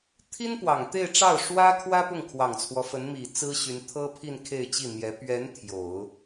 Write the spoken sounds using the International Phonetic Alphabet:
t̪ʰi˥npwɑ˨˩ŋt̪e˥˧ɪ̯ʈ͡ʂɑ˥˩ʊ̯ ʂwä˥kʰwä˥ pʊ˥˩ŋkʰwɑ˨˩ŋt͡sʰwɔ˦fə˧˥n mi˨˩t͡sɹ̩˥ɕy˧˥n t̪ʰɤ˥pʰi˥˧n kʰe˥˧ɪ̯t͡ɕi˥˩n̪jɛ˧˥ pɥɛ˧˥n t̪ʰjo˨˩˦ʊ̯

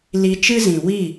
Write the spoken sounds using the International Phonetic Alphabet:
li˧t͡ʃɨ˦zĩ˨ wi˦˨

